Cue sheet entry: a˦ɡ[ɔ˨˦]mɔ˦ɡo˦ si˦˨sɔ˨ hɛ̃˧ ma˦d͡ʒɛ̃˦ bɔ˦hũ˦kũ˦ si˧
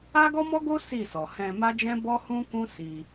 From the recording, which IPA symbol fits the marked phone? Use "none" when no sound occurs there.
ɔ˦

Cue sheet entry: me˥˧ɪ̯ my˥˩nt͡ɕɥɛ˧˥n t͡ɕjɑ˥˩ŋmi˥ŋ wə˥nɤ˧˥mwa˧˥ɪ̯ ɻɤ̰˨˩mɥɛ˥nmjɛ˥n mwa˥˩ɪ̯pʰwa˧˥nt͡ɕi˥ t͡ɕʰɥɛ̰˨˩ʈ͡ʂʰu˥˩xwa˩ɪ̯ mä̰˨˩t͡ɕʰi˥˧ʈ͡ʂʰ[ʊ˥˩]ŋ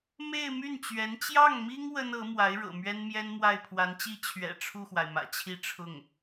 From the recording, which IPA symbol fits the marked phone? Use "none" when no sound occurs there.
ʊ˥˩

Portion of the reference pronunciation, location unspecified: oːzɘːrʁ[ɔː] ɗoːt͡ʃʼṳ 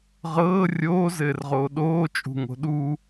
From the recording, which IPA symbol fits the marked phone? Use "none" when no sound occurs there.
oː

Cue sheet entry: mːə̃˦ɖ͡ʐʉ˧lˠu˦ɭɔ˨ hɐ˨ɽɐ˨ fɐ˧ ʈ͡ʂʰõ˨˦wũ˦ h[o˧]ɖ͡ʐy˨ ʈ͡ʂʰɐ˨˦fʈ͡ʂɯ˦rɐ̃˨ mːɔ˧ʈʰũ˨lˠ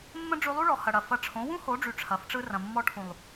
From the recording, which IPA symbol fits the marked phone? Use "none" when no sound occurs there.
o˨˦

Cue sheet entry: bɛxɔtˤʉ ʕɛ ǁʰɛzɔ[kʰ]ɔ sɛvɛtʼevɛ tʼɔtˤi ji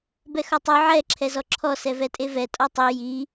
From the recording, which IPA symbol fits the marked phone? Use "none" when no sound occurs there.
ǁʰ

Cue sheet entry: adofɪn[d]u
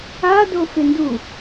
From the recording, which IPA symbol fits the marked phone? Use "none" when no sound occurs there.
d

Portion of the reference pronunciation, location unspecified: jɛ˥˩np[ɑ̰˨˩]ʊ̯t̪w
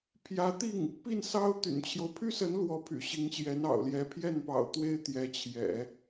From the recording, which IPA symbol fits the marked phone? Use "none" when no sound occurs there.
ɑ̰˨˩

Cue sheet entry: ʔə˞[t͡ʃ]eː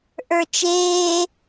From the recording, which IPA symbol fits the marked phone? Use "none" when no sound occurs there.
t͡ʃ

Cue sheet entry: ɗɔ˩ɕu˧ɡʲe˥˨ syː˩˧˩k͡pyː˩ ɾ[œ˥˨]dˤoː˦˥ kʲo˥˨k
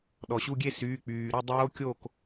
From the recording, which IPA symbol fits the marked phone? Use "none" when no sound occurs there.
ø˥˨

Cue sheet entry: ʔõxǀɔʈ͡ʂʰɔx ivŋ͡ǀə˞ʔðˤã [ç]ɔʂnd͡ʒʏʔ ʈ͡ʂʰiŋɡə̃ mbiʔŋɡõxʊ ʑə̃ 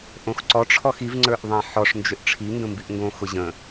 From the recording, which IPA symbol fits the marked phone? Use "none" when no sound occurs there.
ħ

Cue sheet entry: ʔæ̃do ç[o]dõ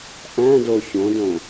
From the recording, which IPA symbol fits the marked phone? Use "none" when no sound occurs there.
õ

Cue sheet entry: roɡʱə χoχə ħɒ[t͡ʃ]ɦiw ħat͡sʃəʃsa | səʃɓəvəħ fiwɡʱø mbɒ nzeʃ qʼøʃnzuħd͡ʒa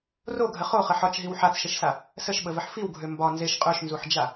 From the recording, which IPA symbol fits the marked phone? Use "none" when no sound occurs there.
t͡ʃ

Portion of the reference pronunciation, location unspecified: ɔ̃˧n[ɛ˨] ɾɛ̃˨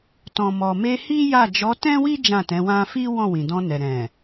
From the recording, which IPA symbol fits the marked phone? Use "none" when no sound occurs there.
ɛ˨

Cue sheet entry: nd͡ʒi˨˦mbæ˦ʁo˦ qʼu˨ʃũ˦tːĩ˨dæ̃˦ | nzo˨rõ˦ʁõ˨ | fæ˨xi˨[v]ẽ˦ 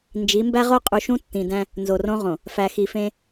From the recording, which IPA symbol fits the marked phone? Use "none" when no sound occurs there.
f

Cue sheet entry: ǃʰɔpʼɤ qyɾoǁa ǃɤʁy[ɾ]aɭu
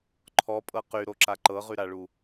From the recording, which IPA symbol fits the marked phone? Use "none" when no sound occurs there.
ɾ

